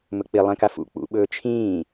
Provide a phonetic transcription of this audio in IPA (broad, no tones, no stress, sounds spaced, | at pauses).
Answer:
m ɵ k͡p i lˠ ẽ k a f ṵ k͡p ṵ ɓ ɵː t͡ʃʰ ĩː